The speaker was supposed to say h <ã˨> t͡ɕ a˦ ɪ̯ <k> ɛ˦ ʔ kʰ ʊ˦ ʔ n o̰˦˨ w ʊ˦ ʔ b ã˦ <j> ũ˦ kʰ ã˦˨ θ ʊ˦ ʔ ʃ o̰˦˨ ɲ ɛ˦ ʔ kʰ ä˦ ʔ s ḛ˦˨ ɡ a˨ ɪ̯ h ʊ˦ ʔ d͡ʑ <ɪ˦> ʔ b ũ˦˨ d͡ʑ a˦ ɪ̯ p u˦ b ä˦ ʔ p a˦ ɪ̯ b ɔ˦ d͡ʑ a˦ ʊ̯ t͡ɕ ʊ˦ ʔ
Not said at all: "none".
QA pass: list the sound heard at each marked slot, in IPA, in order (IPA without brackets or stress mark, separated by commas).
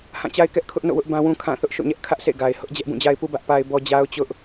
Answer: ã˦˨, k, w, ɛ˦